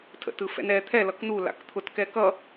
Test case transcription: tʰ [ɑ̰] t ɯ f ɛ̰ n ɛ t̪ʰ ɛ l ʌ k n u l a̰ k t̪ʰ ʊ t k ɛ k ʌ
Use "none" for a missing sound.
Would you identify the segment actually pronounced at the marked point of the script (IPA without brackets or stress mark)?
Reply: ə̰